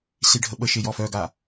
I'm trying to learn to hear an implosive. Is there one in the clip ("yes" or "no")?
yes